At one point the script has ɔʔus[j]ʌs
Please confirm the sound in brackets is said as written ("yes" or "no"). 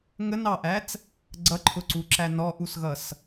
no